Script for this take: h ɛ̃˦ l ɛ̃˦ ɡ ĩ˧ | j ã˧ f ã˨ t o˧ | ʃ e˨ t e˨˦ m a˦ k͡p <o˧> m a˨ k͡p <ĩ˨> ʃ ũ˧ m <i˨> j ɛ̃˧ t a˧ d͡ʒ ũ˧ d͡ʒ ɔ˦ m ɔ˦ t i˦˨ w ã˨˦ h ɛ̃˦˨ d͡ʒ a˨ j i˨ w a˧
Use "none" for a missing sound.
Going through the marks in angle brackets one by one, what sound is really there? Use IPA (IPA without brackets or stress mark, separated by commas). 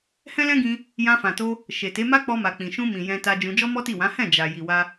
ɔ˧, ĩ˨, ĩ˨